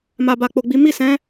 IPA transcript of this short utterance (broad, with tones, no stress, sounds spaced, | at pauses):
m a˨ b a˨ k͡p o˨ ɡ͡b i˨˦ m i˦˨ s ɛ̃˨˦